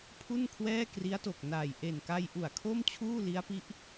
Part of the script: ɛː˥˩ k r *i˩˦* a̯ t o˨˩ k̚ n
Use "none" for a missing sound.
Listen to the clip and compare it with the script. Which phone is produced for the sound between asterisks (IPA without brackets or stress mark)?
i˦˥